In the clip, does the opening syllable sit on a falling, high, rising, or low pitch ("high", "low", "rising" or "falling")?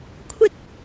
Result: high